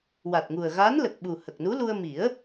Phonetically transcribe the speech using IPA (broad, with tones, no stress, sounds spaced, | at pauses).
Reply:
w a˨˩ t̚ ŋ u˨˩ ə̯ ɣ a˧˥ n l ə˨˩ k̚ ɓ u˨˩ h ə˨˩ k̚ n u˧˥ l u˧ ə̯ m i˨˩˦ ə̯